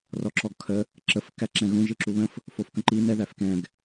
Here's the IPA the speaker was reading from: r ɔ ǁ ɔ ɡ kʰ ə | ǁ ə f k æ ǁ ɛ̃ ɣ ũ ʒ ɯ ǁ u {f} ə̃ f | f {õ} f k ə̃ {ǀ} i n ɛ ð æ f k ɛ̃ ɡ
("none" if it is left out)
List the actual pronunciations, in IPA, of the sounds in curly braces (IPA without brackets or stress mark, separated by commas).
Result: β, o, ǃ